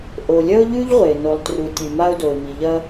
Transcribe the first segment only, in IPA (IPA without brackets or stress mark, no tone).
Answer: ʔ